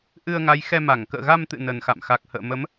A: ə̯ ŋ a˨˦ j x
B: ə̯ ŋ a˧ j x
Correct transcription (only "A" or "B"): A